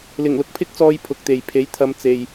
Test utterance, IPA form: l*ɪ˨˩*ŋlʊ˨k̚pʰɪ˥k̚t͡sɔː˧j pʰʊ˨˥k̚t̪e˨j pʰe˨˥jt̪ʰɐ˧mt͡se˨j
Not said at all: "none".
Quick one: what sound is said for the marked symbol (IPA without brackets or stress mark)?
ɪ˨˩